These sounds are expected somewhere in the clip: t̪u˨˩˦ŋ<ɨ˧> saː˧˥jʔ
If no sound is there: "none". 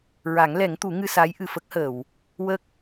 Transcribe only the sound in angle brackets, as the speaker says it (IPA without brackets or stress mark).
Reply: ɨ˧